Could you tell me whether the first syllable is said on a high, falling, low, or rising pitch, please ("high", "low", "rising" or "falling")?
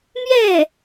falling